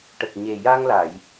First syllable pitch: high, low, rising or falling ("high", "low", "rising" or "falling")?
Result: low